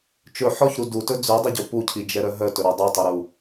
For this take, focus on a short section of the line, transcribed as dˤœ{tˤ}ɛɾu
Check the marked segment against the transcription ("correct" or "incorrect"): correct